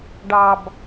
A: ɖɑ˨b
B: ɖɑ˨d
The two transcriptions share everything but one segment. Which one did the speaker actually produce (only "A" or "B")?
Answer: A